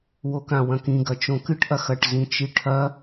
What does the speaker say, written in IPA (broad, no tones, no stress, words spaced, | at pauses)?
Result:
wokãwɐ̃kĩ ɡɐt͡ʃõkɨʈ ʔɐxɐʈ zĩt͡ʃiʈʰɐ